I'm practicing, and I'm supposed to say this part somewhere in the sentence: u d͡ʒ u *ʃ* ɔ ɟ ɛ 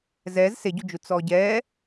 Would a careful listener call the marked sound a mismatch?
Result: yes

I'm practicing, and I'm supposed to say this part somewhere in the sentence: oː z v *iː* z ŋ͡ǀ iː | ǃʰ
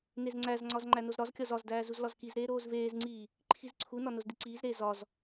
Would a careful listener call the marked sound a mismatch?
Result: yes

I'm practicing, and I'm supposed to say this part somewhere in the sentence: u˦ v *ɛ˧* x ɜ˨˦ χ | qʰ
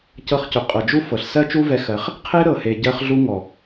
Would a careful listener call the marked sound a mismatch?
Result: no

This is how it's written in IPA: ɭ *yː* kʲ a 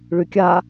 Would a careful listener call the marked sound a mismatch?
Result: yes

